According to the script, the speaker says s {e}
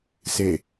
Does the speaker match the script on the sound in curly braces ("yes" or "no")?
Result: yes